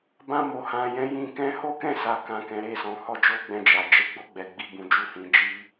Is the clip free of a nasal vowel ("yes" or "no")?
no